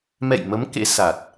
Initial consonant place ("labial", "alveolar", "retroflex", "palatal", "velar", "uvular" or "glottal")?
labial